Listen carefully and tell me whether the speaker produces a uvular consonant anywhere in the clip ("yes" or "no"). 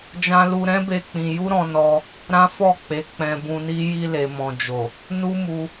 no